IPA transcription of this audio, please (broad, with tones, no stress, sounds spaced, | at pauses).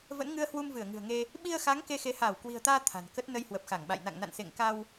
v ə̰˧˥ n ŋ ɨ˧ ə̯ h w u˧ m v ɨ˧˩ ə̯ ŋ ɨ̤˨˩ ə̯ ŋ e˧ | ɓ i˧ ə̯ x a˨˦ ŋ k e˧ x e˨˦ h aː˧˩ w k w i̤˨˩ ə̯ t̪ aː˧ t̪ʰ a̤˨˩ n k ə˦˥ t̚ n ə˧ j h w ə˨˩ p̚ x a˧˩ ŋ ɓ a̰˧˨ j n a̰˧˨ ŋ n a̰˧˨ n s ḛ˧˨ ŋ k a˧ w